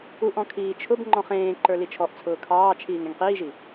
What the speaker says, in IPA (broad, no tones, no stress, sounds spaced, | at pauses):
u ʔ ɔ̃ kʰ iː t͡ʃʰ ʊ b ŋ͡ǃ ɔ̃ χ ẽː ǃ ə˞ l i t͡ʃʰ ɔ ʔ t͡sʰ ʊː kʰ ɑː t͡ʃʰ iː ŋ ẽ ŋ q iː ʒ i